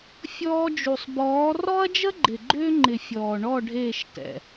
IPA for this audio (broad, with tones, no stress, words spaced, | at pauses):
fʲɔː˧d͡ʒu˨sˤbɔː˨˦ rɔ˦ɐ̯d͡ʒə˦ɡ͡ǃɪ˨ ɡ͡ǃʏː˧ŋ͡ǃɪ˨ fʲɔː˨ɳɔ˦˨ ɖʱeː˦˨ʃtɛ̰˨